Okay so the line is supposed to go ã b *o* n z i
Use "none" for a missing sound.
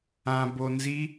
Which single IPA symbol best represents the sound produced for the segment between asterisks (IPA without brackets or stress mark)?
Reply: o